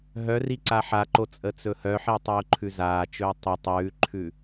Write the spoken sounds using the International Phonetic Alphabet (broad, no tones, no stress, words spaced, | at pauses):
ɦœri ǀaħaǃo t͡sʼət͡sɵhœħi tˤiʊ̯ǃʰʉzaːt͡ʃɵː tˤʉ tˤʉːǃʰʉ